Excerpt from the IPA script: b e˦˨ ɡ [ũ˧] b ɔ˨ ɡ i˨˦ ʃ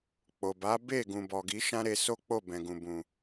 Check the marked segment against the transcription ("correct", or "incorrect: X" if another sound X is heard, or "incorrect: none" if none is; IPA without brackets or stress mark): incorrect: ũ˨